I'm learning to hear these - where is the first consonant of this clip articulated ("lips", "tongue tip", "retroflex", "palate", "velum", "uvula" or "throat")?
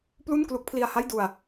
lips